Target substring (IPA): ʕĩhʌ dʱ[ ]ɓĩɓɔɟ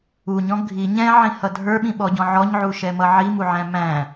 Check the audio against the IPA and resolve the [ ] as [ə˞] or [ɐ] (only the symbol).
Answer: ə˞